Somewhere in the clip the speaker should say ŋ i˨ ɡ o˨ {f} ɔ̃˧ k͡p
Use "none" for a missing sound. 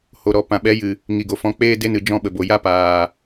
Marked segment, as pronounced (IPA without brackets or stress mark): f